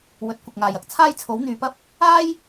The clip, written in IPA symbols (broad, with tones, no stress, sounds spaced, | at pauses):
w ɵ˨˥ t̚ kʷ ɪ˨ k̚ ŋ aː˨ j ɐ˥ k̚ t͡sʰ aː˥ j t͡sʰ o˨˥ w n̪ yː˨˧ p ɐ˥ p̚ | aː˥ j